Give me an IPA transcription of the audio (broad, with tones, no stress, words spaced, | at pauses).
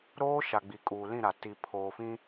ɾoː˦ʃa˨ ɡ͡bi˨kʼuː˨lĩ˦˨ɾa˨ ti˨ pʰoː˨fĩ˦